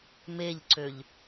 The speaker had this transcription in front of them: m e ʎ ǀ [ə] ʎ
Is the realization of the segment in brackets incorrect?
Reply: yes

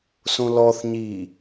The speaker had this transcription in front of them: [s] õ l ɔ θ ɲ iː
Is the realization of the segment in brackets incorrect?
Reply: no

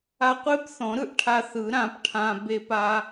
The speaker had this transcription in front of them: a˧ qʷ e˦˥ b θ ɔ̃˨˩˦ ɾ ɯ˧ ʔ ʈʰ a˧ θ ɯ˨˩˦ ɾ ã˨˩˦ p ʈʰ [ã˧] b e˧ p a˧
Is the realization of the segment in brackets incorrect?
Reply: no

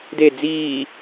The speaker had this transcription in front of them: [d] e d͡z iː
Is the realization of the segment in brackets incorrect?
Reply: no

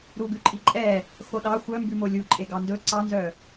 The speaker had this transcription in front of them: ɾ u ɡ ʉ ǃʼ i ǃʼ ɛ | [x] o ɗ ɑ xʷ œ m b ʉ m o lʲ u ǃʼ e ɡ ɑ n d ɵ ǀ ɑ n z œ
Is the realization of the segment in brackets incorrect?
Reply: no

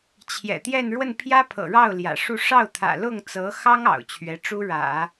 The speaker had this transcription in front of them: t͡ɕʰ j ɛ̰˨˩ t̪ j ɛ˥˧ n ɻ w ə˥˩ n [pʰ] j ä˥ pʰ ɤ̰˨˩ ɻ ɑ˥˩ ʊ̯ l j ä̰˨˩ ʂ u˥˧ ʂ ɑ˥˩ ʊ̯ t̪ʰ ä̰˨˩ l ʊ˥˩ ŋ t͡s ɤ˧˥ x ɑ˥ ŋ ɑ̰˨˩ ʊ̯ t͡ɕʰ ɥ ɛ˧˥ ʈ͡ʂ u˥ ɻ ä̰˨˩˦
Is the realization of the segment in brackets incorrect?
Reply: no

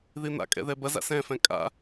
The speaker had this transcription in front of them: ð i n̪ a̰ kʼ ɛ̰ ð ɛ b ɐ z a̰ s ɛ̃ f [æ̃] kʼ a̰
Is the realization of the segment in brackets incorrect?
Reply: yes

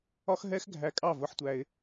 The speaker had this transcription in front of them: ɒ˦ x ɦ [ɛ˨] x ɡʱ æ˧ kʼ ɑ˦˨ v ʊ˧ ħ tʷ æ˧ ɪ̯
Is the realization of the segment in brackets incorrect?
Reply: yes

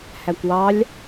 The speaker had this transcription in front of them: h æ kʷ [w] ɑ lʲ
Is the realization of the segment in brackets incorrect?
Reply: no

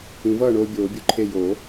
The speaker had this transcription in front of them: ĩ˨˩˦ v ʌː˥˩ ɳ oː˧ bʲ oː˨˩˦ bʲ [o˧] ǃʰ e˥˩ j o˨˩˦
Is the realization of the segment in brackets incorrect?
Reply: yes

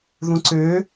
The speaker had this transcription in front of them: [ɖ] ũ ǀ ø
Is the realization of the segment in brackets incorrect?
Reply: yes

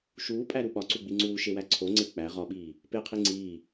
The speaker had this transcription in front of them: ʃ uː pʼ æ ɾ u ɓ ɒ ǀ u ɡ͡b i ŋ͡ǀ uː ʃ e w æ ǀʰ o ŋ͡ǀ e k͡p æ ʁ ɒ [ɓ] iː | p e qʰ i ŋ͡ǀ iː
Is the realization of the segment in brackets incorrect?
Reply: no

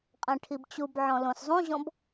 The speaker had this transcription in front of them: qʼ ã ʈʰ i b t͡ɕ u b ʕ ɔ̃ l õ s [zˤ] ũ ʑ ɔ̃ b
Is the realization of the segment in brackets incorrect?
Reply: no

